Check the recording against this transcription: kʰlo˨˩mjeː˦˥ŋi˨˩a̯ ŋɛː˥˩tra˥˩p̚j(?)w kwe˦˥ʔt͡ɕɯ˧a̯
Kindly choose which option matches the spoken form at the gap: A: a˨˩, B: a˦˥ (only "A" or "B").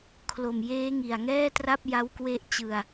B